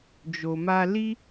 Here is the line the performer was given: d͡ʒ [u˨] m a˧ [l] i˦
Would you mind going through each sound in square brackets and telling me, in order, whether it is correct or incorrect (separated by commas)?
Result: incorrect, correct